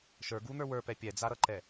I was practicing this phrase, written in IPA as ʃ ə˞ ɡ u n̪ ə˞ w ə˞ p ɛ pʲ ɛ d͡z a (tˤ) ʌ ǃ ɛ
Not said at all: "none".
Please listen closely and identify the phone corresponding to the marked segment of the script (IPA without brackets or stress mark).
ɾ